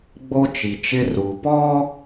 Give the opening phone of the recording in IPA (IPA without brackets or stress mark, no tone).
ɡ͡b